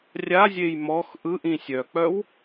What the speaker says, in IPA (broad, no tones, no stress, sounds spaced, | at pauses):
rʲ a zʲ e j m ɔ x ʔ ɯ ʔ ĩ sʲ œ k͡p œ w